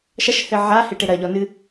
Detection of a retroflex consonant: present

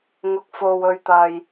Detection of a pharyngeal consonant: absent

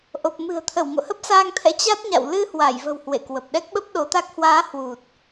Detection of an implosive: present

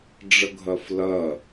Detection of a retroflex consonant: present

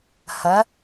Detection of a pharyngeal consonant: absent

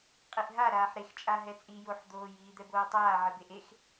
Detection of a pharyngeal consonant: present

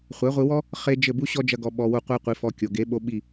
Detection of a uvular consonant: present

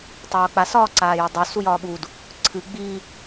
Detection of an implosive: present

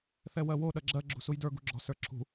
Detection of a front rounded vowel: absent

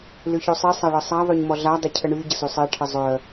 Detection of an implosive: absent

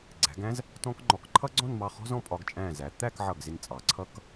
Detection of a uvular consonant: present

